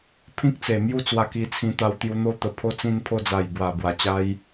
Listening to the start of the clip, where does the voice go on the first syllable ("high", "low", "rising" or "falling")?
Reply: high